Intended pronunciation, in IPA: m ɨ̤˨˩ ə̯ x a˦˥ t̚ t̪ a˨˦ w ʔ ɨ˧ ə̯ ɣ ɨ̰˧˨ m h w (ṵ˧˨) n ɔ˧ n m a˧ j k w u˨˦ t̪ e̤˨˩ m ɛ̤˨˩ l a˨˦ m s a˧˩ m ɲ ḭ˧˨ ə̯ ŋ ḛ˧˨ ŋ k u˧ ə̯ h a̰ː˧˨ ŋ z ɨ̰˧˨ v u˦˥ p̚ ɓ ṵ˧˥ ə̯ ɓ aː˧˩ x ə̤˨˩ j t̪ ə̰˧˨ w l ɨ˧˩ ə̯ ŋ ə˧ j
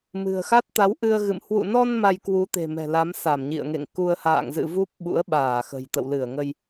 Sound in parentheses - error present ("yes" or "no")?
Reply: no